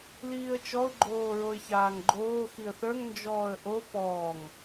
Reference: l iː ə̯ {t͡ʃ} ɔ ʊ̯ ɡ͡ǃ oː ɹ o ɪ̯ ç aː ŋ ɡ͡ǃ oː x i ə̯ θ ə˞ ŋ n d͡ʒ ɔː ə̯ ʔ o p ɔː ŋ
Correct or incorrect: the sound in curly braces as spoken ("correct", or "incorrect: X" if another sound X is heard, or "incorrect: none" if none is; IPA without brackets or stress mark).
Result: correct